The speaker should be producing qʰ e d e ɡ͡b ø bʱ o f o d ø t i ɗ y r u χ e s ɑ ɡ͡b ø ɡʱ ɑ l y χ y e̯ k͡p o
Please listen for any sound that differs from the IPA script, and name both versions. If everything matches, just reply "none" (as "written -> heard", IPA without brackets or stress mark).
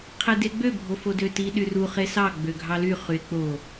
none